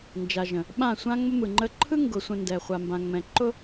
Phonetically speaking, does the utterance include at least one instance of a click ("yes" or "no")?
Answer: yes